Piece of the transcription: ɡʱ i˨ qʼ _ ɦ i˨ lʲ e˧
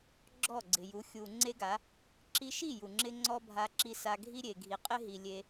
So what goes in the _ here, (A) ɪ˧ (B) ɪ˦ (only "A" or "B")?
B